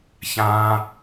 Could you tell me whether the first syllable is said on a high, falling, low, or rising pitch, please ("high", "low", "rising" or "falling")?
high